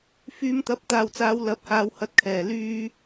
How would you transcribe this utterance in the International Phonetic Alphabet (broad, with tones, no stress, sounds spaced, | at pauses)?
f yː˨˧ m t̪ ɐ˨˥ p̚ t̪ aː˨˩ w t͡s aː˨˧ w l ɐ˨˥ p̚ h aː˨˧ w h ɐ˨˥ t̚ kʰ ɛː˨˩ l yː˧